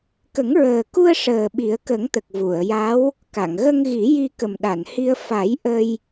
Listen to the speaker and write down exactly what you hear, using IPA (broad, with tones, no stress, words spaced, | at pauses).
kə˨˩˦ŋɹəː˨˩ku˧ə̯ ʂəː˨˩ɓi˨˩˦ə̯kə˨˩˦ŋt̪ə˨˩k̚ vu˨˩˨ə̯ja˧˥w | ka˨˩˨ŋɣə˧ŋɣi˨˩˦ ji˧kə˨˩m ɗa˨˩˨nhi˧ə̯ fa˨˩˦j ʔə˧j